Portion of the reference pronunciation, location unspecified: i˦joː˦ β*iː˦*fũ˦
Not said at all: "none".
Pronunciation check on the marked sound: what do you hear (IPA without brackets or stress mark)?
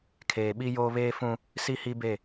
eː˦